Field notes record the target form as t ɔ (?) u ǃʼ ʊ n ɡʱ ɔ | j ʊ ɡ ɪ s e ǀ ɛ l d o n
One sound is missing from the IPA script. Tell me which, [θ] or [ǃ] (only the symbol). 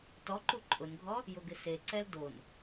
ǃ